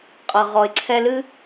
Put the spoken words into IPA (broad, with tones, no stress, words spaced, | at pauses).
qʼʌ˨ʁɔ˨ɪ̯ ǀʰɛ˧lɨ˦